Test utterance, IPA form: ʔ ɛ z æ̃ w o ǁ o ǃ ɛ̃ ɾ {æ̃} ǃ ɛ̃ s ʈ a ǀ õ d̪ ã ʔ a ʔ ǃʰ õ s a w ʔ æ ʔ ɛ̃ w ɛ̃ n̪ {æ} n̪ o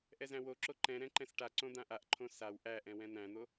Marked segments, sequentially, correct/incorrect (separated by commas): incorrect, incorrect